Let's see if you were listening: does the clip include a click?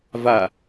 no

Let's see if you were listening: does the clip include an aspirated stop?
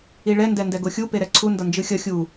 yes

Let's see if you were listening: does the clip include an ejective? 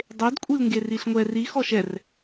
yes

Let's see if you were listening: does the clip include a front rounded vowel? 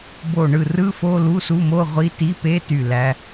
yes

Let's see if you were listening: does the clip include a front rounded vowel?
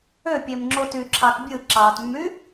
yes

